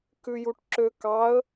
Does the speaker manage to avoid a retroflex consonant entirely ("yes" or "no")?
no